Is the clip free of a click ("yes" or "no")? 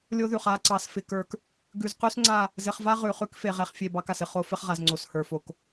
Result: no